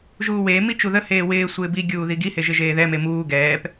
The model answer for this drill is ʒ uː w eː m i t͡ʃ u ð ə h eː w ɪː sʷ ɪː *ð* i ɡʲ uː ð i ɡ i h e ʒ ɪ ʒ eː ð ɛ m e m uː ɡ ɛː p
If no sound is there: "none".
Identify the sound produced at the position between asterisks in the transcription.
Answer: b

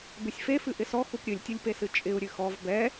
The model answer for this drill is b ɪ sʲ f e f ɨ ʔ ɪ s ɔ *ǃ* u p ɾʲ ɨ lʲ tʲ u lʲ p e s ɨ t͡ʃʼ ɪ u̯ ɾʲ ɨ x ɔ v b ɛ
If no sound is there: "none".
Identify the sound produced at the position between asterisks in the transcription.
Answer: x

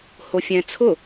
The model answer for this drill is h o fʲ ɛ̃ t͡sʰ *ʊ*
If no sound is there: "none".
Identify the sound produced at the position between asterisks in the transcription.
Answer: ʊ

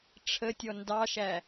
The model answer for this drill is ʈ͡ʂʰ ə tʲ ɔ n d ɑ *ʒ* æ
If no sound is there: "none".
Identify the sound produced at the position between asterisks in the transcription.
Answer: ʃ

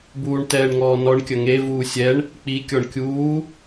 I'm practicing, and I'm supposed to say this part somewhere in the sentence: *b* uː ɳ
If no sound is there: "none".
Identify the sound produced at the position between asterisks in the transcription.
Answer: b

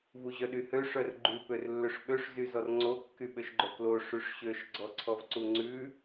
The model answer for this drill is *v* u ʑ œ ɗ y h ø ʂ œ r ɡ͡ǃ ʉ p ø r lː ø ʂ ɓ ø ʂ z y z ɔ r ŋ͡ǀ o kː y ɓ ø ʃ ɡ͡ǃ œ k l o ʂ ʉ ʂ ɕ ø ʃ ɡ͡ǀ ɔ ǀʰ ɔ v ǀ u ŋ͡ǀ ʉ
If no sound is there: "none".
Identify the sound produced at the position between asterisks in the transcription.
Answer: v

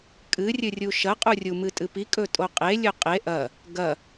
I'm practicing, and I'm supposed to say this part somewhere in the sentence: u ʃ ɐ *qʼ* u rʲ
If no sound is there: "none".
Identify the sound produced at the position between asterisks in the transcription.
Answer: qʼ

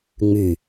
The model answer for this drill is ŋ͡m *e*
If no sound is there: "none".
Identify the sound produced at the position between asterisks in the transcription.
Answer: y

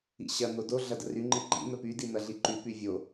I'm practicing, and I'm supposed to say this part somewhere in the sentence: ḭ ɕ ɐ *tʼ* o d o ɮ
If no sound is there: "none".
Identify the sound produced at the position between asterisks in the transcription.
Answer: n̪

